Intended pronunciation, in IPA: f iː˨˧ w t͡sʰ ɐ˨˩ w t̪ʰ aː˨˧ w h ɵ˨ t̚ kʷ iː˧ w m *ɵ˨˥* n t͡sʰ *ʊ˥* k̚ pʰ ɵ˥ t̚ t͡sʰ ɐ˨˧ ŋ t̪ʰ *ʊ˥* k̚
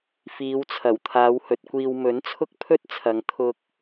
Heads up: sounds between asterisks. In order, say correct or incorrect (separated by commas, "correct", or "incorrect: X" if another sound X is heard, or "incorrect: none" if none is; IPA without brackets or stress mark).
correct, correct, incorrect: ʊ˧